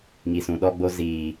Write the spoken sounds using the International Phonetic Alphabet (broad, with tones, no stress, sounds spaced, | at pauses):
ŋ i˨ s ũ˨ ɗ ɔ˦ ɡ͡b o˦ z iː˨